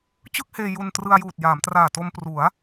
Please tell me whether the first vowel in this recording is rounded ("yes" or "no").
no